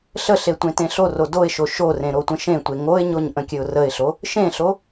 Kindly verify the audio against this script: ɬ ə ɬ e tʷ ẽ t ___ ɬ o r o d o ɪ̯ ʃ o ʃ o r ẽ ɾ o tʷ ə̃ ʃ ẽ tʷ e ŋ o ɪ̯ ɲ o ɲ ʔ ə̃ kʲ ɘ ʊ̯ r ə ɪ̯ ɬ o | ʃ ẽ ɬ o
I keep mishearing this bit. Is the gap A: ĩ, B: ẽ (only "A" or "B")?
B